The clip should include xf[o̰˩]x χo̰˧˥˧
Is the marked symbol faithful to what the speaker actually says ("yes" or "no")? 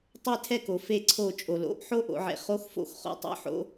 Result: no